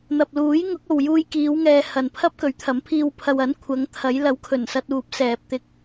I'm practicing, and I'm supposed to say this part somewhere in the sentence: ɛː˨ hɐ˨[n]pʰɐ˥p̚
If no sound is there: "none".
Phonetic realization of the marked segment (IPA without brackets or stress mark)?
n